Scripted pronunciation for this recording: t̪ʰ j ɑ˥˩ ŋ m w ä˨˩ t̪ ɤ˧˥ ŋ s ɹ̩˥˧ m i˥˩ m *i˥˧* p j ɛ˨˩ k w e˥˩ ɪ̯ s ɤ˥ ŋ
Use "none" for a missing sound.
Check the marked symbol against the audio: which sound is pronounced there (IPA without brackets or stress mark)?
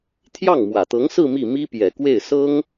i˥